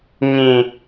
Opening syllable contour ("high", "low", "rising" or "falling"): low